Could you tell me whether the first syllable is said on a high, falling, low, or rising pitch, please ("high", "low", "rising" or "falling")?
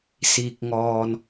low